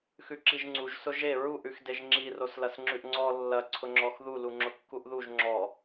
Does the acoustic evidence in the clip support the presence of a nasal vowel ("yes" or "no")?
no